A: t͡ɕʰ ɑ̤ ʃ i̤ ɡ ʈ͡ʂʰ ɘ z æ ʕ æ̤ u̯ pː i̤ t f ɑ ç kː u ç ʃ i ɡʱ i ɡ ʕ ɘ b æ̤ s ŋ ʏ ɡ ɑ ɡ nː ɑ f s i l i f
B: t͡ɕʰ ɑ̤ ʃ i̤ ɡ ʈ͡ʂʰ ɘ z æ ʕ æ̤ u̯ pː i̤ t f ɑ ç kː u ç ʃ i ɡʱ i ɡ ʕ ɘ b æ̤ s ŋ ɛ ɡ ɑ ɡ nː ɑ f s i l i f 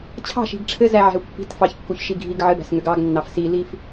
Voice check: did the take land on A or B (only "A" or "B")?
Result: A